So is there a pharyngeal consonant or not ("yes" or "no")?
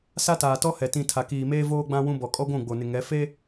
no